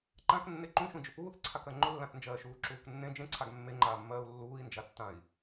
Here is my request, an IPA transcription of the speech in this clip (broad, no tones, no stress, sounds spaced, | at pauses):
ǃ ã k nː e ǃ ũ ʃ ũ d͡ʒ ʏ p uː θ ǀʰ a k ɜ ŋ͡ǃ ʊ lː ã θ n d͡ʒ ɜː ʃ uː ǁ uː k nː ẽ d͡ʒ ẽ ǀʰ a ɡ mː e ŋ͡ǃ aː mː ɜː u̯ lː uː i̯ n d͡ʒ a tː ã i̯